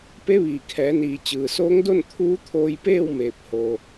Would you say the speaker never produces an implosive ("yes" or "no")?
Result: yes